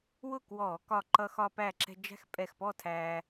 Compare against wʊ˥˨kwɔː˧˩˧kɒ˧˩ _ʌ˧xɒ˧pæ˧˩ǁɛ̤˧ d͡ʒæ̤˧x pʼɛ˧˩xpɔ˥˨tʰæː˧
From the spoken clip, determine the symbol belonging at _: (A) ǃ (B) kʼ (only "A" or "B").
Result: A